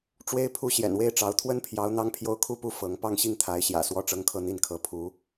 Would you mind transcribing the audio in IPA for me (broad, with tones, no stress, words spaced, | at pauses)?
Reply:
ʈ͡ʂwe˥ɪ̯pʰu˥˩ ɕjɛ̰˨˩nwe˥˩ɪ̯ʈ͡ʂɑ˧˥ʊ̯ t̪ʰwə˥npʰjɑ˧˥ʊ̯ n̪ɑ˥ŋpʰjo˥ʊ̯kʰu˥pu˥˩ fɤ˧˥ŋ pɑ˥˧ŋɕi˥˩ŋt̪ʰa˧˥ɪ̯ɕjä̰˨˩ swɔ˥ʈ͡ʂɤ˥ŋkʰɤ˥˧ n̪i˥˩nkʰɤ˧˥pʰu˧˥